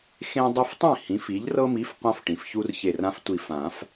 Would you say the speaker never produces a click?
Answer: yes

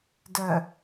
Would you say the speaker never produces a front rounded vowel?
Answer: no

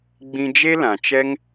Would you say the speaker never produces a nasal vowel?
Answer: no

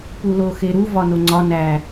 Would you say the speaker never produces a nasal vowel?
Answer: yes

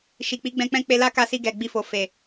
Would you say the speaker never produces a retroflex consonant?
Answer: yes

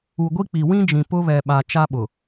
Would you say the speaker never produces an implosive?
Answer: no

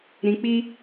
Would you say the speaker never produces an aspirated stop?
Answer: yes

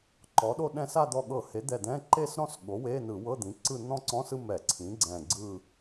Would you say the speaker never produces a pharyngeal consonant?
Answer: yes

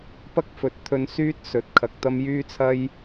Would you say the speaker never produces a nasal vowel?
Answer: yes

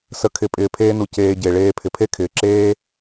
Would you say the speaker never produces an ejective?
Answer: no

